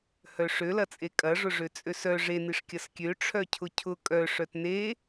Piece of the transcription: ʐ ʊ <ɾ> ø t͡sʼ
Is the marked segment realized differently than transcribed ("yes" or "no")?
yes